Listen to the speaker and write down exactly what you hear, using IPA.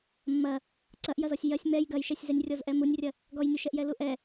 mː ɐ | ǀ ɐ ʔ j ɐ z ɔ sʲ j ɐ sʲ m ɛ j ɡ ɐ j ʃ ɛ sʲ z ɛ nʲ rʲ ɔ z ʔ ɛ m u nʲ rʲ ɐ | ɡ ɔ j nʲ u ʃ ɛ ʔ j ɛ l u ʔ ɛ

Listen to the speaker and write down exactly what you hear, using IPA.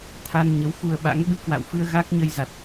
t̪ʰ a˧ n ɲ ə˨˦ w f u˧ ə̯ ɓ a̰˧˥ ŋ ɓ ɨ˧ k w a̰˧˨ w f ɨ˧ ə̯ ɣ a˦˥ k̚ ɲ ə˧ j z a˨˩ t̚

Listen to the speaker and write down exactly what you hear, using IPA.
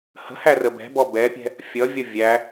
h ə̤ h æ r ə b ɛ̤ b ɔ b ɛ pʲ ɛ̤ | fʲ ʌ vʲ ʌ vʲ æ

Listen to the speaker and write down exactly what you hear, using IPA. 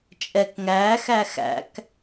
t͡ʃʼ ɛ k ŋ æː x æ x æ̰ k

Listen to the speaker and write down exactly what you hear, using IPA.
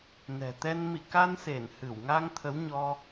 n ɛ̤˨˩ t̪ ɛ˧ n m ḭ˧˨ k a˧ n s e˧˩ n h ɨ˧˩ w ŋ a˧ ŋ t̪ʰ ə˨˦ w ɲ ɔ˧

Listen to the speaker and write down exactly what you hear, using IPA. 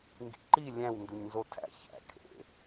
ŋ ɡ ḭ ǃ i lʲ æ̃ w n d u ɲ n z o tʰ æ̰ ç æ̰ kʰ ḛ

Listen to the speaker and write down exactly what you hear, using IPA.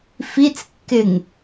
f i t͡s kː ɪ ŋ

